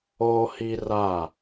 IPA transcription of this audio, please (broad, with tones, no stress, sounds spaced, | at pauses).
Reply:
oː˦ h i˦ r a˦˨